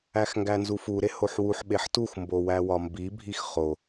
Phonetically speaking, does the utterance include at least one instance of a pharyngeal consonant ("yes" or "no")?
yes